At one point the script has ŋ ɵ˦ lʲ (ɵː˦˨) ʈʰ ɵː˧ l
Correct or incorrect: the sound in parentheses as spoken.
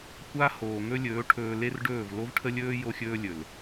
incorrect: ɵː˨˦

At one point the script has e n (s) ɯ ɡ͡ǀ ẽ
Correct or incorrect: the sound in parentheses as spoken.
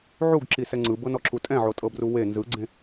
incorrect: z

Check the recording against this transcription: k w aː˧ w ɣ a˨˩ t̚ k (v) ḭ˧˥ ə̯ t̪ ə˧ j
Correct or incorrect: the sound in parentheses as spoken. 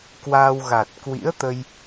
incorrect: w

